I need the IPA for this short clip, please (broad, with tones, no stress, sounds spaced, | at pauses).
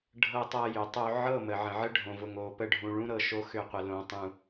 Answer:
ɖʱ ɤ˦ tˤ ɤ˦ j ʏ˨˦ tˤ o˦ ʕ ɤ˦˨ m ə˨ ʕ ə̃˨ ʕ ə˦ ɖʱ õ˨ v ʊ˨ ŋ o˨ p ə˦˨ ɖʱ ũ˨ ɭ ũ˦ ɾ ɤ˨ ʃ o˦ x ʏ˦˨ qʷ ə˨ l õ˨ tˤ ũ˨